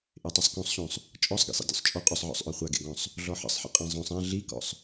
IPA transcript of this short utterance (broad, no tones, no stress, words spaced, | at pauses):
ʔetˤesˤkõsˤɕõsˤ | t͡ʃʼɔsˤɡḛsˤḭ dʲo̰sˤt͡ʃʼɔ qʼɵsˤʕɔ̰sˤʔœ χʷaɡḛɡɔ̃sˤ | ɮɔħə̰sˤħə̰ qʼãzˤõsˤ ã ɮikɔ̰sˤ